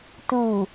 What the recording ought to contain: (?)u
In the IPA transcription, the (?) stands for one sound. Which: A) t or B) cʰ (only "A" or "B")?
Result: A